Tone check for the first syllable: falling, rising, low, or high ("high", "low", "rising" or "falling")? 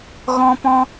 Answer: high